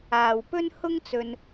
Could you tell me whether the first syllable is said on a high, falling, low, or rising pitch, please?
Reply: low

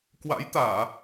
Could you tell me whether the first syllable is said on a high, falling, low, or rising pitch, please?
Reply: rising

